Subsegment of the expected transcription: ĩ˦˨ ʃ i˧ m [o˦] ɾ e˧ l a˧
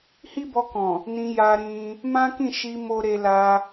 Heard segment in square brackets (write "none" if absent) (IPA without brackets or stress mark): o˦